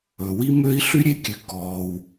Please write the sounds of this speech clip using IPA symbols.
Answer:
ɵ˩ w i˥ m ø˥ i̯ ɬ y˥ ɾʲ e˥ kʲ ʉ˩ k ɔː˩ w

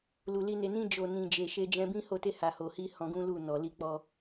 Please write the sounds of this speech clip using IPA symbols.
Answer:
l u˨ l i˧ n e˨ n ĩ˧ d͡ʒ o˨ n ĩ˨ d͡ʒ e˨ ʃ e˧ d͡ʒ ɛ̃˧ b ĩ˦ h o˦˨ t e˧ h a˨ h o˨ h i˧ h ɔ̃˧ ɡ ũ˦ l u˦˨ n ɔ˨ l i˧ k͡p ɔ˧

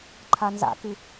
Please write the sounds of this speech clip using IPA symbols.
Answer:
ǃʰ a n z a̰ k ɨ

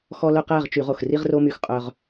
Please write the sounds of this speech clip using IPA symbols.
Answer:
x ɔ˥ l œ˥ q æ˧˥˧ ʁ t͡ʃ y˧˩˧ ʁ o˨˩ x r i˥ ʁ r o˥ m y˦˨ x qʼ œ˨˩ ʁ

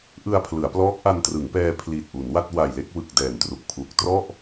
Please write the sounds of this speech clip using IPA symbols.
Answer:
ʔ ɯ˧ a̯ pʰ l ɯ˩˦ a̯ p l ɔː˦˥ k̚ ʔ a˧ n t r ɯ˩˦ ŋ p ɛː˧ pʰ l i˨˩ t̚ ʔ u˩˦ n w a˥˩ t̚ w a˨˩ j l e˥˩ k̚ w ɯ˨˩ k̚ d ɛː˨˩ n t r u˨˩ k̚ pʰ u˨˩ k̚ t r ɔ˥˩ ʔ

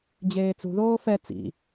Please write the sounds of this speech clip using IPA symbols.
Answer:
d͡ʑ eː t͡s ṳ ð oː f ɛ t͡s ḭ

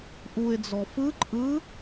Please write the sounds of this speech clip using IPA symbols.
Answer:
ʔ u ɪ̯ d͡z ɔ f ɯ ǃʼ ɯ

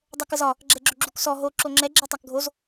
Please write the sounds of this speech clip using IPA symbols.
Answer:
dˤ ɛ k ə z ɒ | ɡ͡ǁ ɛ ɡ͡ǁ ʏ ɡ͡ǁ u k s ɔ ɦ o ǁ o ŋ͡ǁ ɛ ɡ͡ǁ ɛ tˤ a k ɡʱ o z

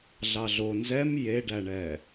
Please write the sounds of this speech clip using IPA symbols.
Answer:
ɮ ɑ ɮ o n z ɛ m j e ɖ æ ɳ ɛ

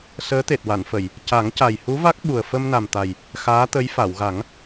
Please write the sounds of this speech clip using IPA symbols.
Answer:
s əː˧˥ t̪ e˨˩ t̚ w a˨˩˨ n f ə˨˩˨ j | c a˨˩˦ ŋ c a˨˩ j h u˧˥ v a˦˥ k̚ ɓ u˨˩ ə̯ f ə˧ m n a˨˩ m t̪ a˨˩ j | x aː˧˥ t̪ ə˧˥ j f a˨˩˨ w ɣ a˨˩˦ ŋ

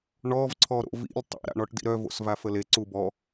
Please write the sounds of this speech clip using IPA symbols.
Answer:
ɳ ɔ v ǀʰ ɔ ɾ o̰ v ḭ lʲ tˤ ḭ ɾ a̰ ɳ ɔ ʈ d ḭ ɾ œ v o̰ s v a f ə l e ǀ u b ɔ

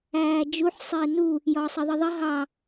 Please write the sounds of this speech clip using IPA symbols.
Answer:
æː d͡ʒ u ħ sˤ ɪː n u | j ɒː sˤ ɜ ðˤ ɜ ðˤ ɜ ɦ ɑ

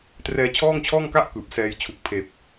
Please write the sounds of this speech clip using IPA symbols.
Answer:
t r ɛː˧ t͡ɕʰ ɔː˥˩ ŋ t͡ɕʰ ɔː˥˩ ŋ k a˥˩ ʔ k ɯː˨˩ p̚ s ɛː˦˥ j t͡ɕʰ u˨˩ k̚ pʰ eː˨˩ p̚

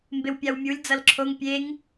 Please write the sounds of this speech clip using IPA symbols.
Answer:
m b e w pʲ a w mʲ u lʲ d͡z ʌ l ǁʰ o ŋ pʲ e ŋ

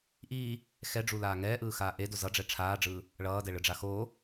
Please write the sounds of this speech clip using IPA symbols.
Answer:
ʔ iː | x ɛ ɖ͡ʐ u l aː ŋ ɛː ʔ ɯː x aː ʔ e d o z ʌ ɖ͡ʐ ɛ ʈ͡ʂʰ aː ɖ͡ʐ ɯː | ɭ ʌː d ɛ ɭ ɯ ɖ͡ʐ a x oː

